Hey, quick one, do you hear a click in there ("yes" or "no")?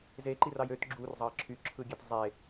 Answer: yes